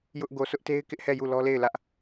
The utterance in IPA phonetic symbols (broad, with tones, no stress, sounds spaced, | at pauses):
j ʊ˦ ʔ ɡ o˨ s ʊ˦ ʔ t e˦ ɪ̯ k ɪ˦ ʔ h ɛ˦˨ j u˦˨ l ɔ˦ l e˦˨ ɪ̯ l ä˦ ʔ